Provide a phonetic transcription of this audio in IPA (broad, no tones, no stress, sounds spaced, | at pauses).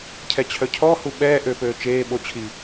cʰ ɛ t͡ɕʰ œ cʰ ɔ h u ɓ ɛː ʔ ø p øː t͡ʃ eː ɓ o t͡ɕʰ i